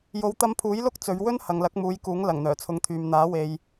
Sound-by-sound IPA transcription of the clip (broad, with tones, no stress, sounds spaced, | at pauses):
j o˨˧ w t̪ ɐ˧ m pʰ uː˨˥ j l ʊ˥ k̚ t͡s ɵ˨˧ ɥ w ɵ˥ n h ɐ˨ ŋ l ɐ˨˥ k̚ m uː˨˧ j k uː˨˥ ŋ l ɐ˨˩ ŋ n̪ œː˨˩ t͡sʰ ʊ˨˥ ŋ t̪ʰ yː˨ m n̪ aː˨˥ w e˧ j